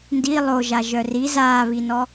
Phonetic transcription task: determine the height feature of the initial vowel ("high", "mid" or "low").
high